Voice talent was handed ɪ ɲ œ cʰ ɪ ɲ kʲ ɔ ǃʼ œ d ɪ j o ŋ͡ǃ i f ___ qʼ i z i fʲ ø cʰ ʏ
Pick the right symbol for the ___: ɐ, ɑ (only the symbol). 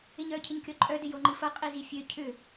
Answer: ɐ